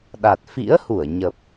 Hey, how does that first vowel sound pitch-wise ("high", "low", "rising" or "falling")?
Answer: low